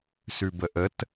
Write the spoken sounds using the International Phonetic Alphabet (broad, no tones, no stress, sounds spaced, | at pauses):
s ʉ b ə ʔ ə t